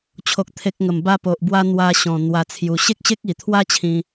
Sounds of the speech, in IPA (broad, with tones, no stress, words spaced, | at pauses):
t͡ɕʰo˨k̚t̪ʰe˨k̚ŋə˨˩m ba˧po˨ʔbwa˧ n̪wa˧ɕɔ̃˨˩ n̪wa˧t͡sʰju˧ ɕe˦k̚ɕe˦k̚ i˨˩t̪ʰwa˦t͡ɕʰĩ˧